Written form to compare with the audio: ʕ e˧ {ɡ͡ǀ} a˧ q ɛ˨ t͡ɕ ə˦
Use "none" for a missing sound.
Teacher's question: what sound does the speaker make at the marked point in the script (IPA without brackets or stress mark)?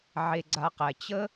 ɡ͡ǀ